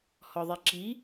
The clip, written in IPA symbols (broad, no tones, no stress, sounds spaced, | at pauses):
h ɔ ðˤ i ǁ i